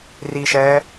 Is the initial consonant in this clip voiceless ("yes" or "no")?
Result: no